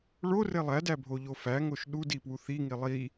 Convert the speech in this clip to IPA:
ɭore lˠædæbʱoʎo fæŋoʃ ɗudipwu θiŋi lˠi

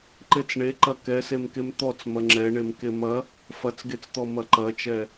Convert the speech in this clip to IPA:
ǃet͡sɳeǃɐ kɛsemkem t̪ɔt͡s mɐŋ͡ǁɛɳem kemɐ | fɐt͡sɡet͡st̪ɔ mɐǃɐt͡ʃɛ

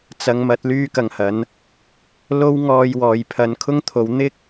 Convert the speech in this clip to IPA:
t͡sɐ˨˧ŋmɐ˨˥t̚ lyː˥kɐ˨ŋhɐ˨˥n | lo˥wŋɔː˧j wɔː˨jpʰɐ˨˧nkʰʊ˥ŋt̪ʰo˨˧w n̪ɪ˥k̚

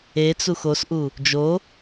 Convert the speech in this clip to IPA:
et͡sux osʔu | d͡ʒo

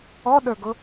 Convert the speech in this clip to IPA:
ɔɗə˞ɡʊ

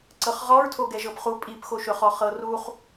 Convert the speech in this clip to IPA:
ǀɤχʁɔɹtʰo ɡɛʒɤpχu pʼipxoʃɵχɔ χɤruχ

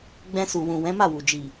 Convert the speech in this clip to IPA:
ɡ͡bɛ̃˧su˨ wũ˨ wɛ̃˨˦ma˦˨wu˨ d͡ʒi˨

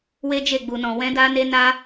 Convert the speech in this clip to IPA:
we˦d͡ʒe˦˨ɡ͡bu˨nɔ̃˨ wɛ̃˧da˧ne˧na˧

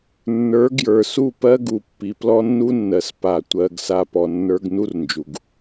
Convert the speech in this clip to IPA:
nːə˞˨˦ɡjə˞˨su˦˨ pɜ˦ɡu˨ pːi˨plɔ˦nːu˦nːɜ˨s pa˨ tʷɜ˨ɡ sa˦pɔ˨ nːə˞˦ɡ nu˦rnd͡ʒu˨ɡ

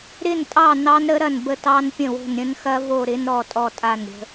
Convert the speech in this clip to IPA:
ɾɪ˦˨ntʼɑ˦˨ nɑ˦˥nɾə˦˥ɾɐ˦˨nbə˦˨ tɑ˦˥npʲə̃˦˨wo̤˦˨nɾʲə̃˦˥n xɐ˦˥vo˦˨ɾɪ˦˥n ɾɔ˦˨tʼɔ˦˨tʼa˦˨n ɾʲə̤˦˥

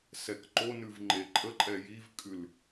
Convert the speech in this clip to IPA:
sɛkǃonʉv ŋ͡ǃeǃʼəǃʼɛ jivkʼʉl

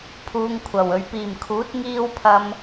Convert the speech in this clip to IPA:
pʰuː˨ŋ kʷʰɐ˨˩w ɵ˨˩ɥpiː˨˩mkʰuː˨˥t̚ ŋiː˧wpʰɐ˨m

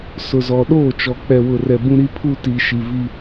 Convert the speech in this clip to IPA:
sʊ˨zɔ˨ɗoː˦˨t͡ʃɔ˨ k͡pɛ˨wʊ˨rɛ˨ bũ˦ɾi˦ pʰu˦ti˨ ʃi˨vi˦

